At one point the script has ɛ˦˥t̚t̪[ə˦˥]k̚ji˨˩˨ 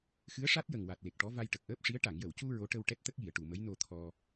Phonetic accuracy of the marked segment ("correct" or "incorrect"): correct